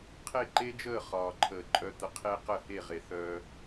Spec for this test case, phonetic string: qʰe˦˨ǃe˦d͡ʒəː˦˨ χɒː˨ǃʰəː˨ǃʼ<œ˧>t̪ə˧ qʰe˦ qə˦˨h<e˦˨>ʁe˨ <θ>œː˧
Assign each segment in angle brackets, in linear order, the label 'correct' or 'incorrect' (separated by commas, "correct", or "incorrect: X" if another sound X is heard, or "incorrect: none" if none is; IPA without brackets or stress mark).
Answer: correct, correct, correct